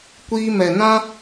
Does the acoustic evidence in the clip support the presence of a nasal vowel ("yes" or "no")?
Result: yes